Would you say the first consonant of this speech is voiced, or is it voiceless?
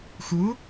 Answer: voiceless